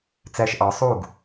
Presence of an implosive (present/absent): absent